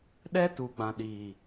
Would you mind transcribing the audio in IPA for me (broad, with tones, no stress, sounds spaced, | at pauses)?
ɗ ɛ˦ t u˨ ɡ͡b ã˨ ɗ iː˨